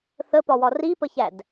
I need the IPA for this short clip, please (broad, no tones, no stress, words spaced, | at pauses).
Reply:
θəpɒwɒ ripəçæd